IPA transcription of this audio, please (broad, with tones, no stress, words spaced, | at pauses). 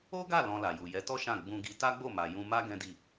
o˦ɡa˦˨ lɔ̃˧la˨ju˨ jɛ˨˦tɔ˦ ʃã˦˨ ɡ͡bũ˧ɡi˧ ta˦ɡ͡bo˦˨ma˨ jũ˧ma˦ ɡɛ̃˦di˦˨